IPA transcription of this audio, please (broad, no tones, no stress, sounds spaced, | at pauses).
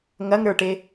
ŋ ɐ ŋ ɾ ə˞ ʈ e